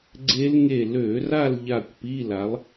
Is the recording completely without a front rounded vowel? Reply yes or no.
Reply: no